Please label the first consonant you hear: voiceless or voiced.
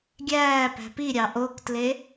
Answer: voiced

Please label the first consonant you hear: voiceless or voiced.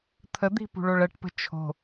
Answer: voiceless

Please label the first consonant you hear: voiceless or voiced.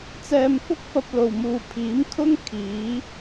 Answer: voiceless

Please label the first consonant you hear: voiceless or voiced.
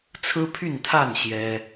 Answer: voiceless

